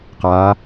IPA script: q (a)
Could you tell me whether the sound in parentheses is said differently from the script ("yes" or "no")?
yes